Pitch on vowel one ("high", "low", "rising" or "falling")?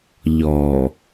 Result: low